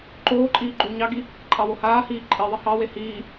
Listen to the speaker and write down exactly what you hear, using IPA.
ǃ oː ǃʼ iː ɡ͡ǃ uː ɲ ɑ ɡ i | ǃʼ ɑ w o h aː h iː ǃʼ i ðˤ i h ɑ w e h iː

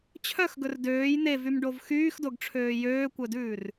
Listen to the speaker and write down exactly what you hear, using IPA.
t͡ɕʰ œ x ɡ ɵ r d øː j n̪ e v y m ɖ o v x yː x d o ɡ ʈ͡ʂʰ øː j øː kʷ œ d ʉː r

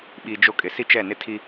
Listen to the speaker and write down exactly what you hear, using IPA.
ɓ i˨ d͡ʒ o˦ kʼ ɪ˨ s i˦ t͡ʃ ɛ˦˨ n ɪ˦ tʰ i˦

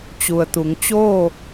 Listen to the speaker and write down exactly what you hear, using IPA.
t͡ɕ u˩ ə̯ t̪ u˩˧ ŋ t͡ɕ oː˥˨

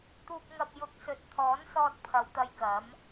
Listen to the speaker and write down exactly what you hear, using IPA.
t̪ uː˨ k̚ ŋ ɐ˨ p̚ j ʊ˨˥ k̚ s ɵ˨ t̚ t̪ʰ ɔː˨˥ n s ɔː˧ t̚ pʰ ɐ˨˧ w t̪ ɐ˧ j k ɐ˨˥ m

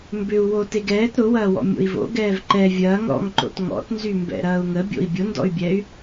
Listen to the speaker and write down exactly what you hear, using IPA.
m b ʏ u̯ w o t e ɡ ɛː t ɾ ʊ w ɐː w ɔ̰ mʲ o̰ i̯ v o̰ ɡ ɛː v ǃ ɛ vʲ ɐː ŋ ɾ ɔ̰ ŋ ǃ o̰ t ŋ ɔ̰ t n z y m b ɛ̰ ɾ ɐː u̯ ŋ ə bʲ o̰ i̯ bʲ ʊ n d ɔ̰ y̯ bʲ ɛ y̯

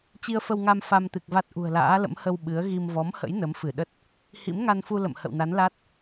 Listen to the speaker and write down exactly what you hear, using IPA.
t͡ɕ i˧ ə̯ f ə˧ w ŋ a˧ m f a˧ m t̪ ɨ˨˩ k̚ v a˦˥ t̚ ʔ ṳ˨˩ ə̯ l a̰ː˧˥ l ə̰˧˥ m h ə˧ w ɓ ɨ˨˦ ə̯ ɣ i˧ m v ɔ˨˦ m h ə̰˧˥ j n ə˨˦ m f ɨ˧˩ ɗ ə˦˥ t̚ | h ḭ˧˥ m ŋ a˧ n f u˧ l ə̰˧˨ m h ə̰˧˨ w n a˨˦ n l a˦˥ t̚

